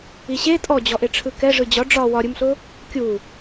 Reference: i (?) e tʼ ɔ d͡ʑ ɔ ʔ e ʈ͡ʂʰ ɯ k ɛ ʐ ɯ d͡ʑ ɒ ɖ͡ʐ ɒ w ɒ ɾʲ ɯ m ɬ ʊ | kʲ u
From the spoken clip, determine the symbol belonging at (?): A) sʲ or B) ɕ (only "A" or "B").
B